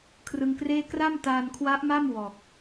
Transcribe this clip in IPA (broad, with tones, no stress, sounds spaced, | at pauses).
kʰ r ɯ˧ ŋ k r eː˥˩ k r a˥˩ m t aː˧ n kʰ w a˦˥ ʔ m a˥˩ m w ɔː˨˩ k̚